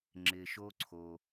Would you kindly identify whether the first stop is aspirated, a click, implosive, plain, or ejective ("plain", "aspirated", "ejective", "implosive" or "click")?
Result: click